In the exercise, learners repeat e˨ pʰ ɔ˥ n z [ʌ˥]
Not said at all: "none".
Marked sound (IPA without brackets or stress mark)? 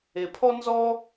ɔ˥